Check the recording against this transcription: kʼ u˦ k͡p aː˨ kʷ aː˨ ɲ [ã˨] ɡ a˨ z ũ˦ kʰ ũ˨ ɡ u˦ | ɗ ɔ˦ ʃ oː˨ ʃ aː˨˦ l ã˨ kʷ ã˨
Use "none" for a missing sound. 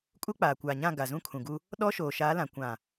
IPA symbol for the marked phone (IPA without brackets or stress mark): ã˦˨